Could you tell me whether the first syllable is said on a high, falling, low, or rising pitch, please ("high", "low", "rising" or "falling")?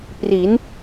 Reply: rising